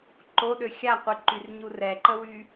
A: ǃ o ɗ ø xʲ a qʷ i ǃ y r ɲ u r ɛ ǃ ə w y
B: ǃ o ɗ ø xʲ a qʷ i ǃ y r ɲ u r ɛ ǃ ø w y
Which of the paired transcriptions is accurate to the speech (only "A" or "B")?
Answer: A